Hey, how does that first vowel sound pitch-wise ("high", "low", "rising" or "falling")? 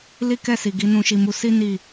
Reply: high